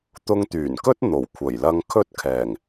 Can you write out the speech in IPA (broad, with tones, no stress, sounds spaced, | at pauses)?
t̪ ʊ˧ ŋ t̪ yː˨˩ n k ɵ˥ t̚ n̪ o˨˩ w kʷʰ ɐ˨˩ j l ɐ˧ ŋ kʰ ɵ˥ t̚ kʰ ɛː˨˩ ŋ